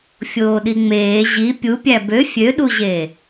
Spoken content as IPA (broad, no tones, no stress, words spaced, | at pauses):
fʲoːɗiŋ͡meː ʑi pʲupʲæ bø fʲøɗuʑeː